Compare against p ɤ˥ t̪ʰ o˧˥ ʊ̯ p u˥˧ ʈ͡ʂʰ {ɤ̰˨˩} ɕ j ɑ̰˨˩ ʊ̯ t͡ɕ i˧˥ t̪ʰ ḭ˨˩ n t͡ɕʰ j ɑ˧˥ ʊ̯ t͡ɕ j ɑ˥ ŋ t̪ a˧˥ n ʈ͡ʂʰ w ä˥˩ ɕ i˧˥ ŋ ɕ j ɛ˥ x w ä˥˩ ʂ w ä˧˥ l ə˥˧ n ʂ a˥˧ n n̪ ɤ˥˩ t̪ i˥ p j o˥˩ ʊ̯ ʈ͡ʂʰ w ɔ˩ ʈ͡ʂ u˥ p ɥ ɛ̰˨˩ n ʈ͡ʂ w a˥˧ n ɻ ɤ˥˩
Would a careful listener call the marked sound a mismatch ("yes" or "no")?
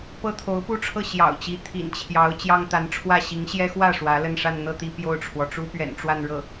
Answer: yes